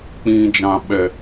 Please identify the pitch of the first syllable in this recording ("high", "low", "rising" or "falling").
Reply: low